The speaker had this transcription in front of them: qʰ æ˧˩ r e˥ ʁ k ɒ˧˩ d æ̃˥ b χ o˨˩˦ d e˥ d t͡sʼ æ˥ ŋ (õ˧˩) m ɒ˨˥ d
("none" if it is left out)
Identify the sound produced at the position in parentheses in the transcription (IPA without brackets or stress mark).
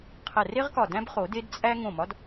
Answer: õ˧˩